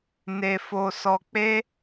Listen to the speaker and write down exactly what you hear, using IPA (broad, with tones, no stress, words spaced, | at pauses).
ne˧fo˧sɔ˧ k͡pe˦